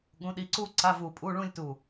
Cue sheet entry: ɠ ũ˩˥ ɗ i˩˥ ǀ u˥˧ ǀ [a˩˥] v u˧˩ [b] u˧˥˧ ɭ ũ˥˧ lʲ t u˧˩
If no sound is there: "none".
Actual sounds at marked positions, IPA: a˧˥˧, pʼ

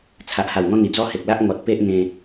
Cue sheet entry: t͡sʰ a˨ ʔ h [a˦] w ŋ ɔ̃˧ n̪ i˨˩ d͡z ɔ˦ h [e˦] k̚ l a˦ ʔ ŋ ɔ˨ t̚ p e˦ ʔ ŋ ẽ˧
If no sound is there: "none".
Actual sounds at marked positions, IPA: a˨˩, e˨

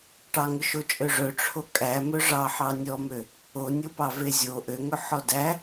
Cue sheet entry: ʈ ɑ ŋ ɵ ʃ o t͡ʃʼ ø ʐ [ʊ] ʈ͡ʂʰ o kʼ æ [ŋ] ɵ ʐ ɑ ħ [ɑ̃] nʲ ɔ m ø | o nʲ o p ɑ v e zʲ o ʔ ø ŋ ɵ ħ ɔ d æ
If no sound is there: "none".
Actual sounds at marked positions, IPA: ɵ, m, ɑ

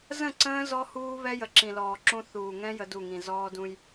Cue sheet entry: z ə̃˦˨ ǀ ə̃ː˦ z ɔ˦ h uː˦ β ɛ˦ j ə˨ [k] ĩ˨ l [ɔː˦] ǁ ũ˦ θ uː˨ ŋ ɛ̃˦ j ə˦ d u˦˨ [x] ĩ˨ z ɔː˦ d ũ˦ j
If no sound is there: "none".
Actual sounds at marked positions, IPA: ǁ, ɔː˨, ŋ

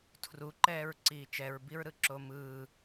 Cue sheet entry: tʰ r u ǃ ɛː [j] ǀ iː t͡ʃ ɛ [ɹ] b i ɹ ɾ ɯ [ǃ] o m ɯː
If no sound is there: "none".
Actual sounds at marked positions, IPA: ɹ, ɹ, ǁ

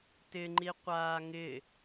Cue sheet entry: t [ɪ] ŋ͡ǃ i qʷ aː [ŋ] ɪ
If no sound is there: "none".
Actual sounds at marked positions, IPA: ɪ, ŋ

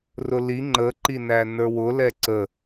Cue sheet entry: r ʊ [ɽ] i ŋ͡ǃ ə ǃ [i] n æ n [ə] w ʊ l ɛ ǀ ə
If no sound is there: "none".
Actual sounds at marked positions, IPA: l, i, ə˞

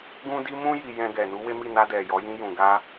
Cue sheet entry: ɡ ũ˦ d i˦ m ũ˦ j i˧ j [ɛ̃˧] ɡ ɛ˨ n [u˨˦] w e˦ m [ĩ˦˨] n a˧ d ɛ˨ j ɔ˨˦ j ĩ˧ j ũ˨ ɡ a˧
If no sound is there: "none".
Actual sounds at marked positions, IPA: ɛ̃˧, u˨˦, i˦˨

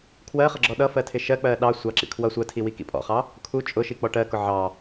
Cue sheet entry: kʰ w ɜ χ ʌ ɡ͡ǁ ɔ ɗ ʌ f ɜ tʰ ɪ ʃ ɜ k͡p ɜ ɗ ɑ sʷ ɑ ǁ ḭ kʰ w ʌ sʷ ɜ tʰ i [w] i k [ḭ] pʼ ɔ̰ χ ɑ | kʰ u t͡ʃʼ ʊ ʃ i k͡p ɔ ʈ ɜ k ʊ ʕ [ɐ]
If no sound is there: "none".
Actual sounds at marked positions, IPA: w, ḭ, ɑ

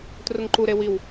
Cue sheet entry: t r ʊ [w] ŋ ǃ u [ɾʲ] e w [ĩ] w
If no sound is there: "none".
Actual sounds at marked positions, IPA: none, ɾ, i

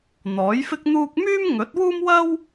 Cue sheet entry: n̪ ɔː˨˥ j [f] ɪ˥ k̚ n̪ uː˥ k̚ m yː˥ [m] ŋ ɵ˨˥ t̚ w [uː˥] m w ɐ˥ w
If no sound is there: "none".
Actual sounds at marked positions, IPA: f, m, uː˥

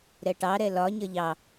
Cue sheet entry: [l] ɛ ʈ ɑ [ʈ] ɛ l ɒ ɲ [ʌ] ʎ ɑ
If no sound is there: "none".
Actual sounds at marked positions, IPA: ɾ, ɾ, ʌ

